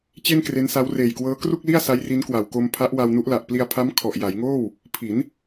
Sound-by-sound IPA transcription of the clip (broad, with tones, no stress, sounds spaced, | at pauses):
t͡ɕ e˥˩ n k r e˦˥ n s a˦˥ w r eː˨˩ j k w ɤː˦˥ k r u˥˩ k̚ l i˥˩ a̯ s a˦˥ j r i˦˥ n k w a˨˩ w k o˧ m pʰ a˦˥ ʔ w a˧ w n u˦˥ ʔ l a˨˩ ʔ p l i˧ a̯ pʰ a˦˥ m kʰ ɔ˨˩ ʔ j a˩˦ j ŋ oː˥˩ w | pʰ i˩˦ n